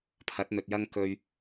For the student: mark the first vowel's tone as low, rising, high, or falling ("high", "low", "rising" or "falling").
rising